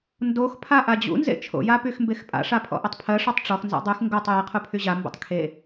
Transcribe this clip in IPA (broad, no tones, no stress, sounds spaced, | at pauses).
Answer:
n d o x pʰ a ʔ a d͡ʑ ṵ n z ḛ t͡ʃʰ o̰ j a p y x m b e x pʼ a̰ ʂ a pʰ ɔ̰ ʔ ɵ tˤ pʰ ɜ ʂ ɔ tˤ ʈ͡ʂ ɔ x n z a̰ dˤ y x ŋ ɡ o tˤ j e qʰ u pʰ y ʑ a m b ṵ tˤ kʰ e